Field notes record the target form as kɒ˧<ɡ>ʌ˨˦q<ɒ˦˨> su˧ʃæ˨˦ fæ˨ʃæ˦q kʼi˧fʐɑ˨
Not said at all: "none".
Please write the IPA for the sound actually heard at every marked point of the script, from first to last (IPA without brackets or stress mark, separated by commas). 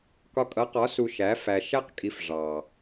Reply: kʼ, ɒ˨˦